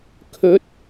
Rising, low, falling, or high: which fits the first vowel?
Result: rising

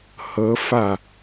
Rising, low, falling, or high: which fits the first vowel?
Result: rising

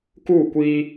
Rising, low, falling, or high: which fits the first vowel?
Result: falling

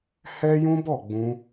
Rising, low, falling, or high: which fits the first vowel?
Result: high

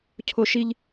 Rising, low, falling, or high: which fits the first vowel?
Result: high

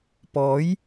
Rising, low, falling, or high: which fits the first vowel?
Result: rising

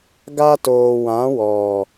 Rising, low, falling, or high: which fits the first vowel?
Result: high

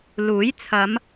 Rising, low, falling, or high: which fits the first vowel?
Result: rising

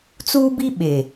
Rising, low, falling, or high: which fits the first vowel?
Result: high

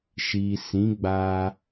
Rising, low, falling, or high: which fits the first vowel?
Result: low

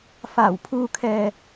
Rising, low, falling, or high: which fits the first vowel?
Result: low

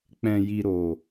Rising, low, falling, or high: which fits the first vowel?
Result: low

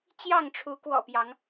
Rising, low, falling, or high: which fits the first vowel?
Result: falling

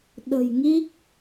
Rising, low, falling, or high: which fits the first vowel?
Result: low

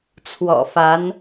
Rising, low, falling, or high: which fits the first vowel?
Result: low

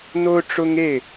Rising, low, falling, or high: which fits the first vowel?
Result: high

